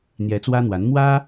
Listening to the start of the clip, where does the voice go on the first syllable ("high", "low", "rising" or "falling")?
rising